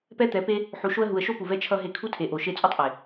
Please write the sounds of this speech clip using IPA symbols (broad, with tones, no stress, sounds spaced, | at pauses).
p ɛ˦ t̪ ɛ˨˦ p e˦ | ħ u˨ ʃ o˧ ə̯ ɦ u˨ ə̯ ʃ o˦ p u˨ v ɛ˦ t͡ʃʰ ʌ˧ ɦ e˧ kʰ u˦ tʰ e˨ ʔ o˨ ʃ e˧ t͡sʼ u˦ tˤ ʔ e˨